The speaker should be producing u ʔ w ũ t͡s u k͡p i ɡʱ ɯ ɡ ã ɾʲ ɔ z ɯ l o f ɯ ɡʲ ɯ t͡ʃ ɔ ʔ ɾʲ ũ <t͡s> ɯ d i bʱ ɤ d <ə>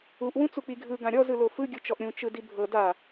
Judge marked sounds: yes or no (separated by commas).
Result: no, no